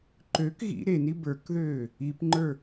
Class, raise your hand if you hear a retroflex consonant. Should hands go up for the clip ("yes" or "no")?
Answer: no